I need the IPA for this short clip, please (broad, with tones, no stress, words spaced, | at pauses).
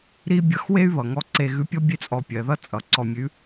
ɾi˥ bʲʌ˧x we˥y̯βʌ˩ŋɔ˧ ǀe˧ɣʉ˧˥pʲɔ˥ bʲe˥t͡sʼɔ˧pʲɜ˩˧ ðʌ˥ t͡sʼʌ˩˧ ǀɔ˧mʲʉ˧˥